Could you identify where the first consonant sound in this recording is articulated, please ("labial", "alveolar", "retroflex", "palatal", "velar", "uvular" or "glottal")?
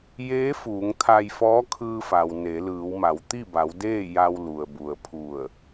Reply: palatal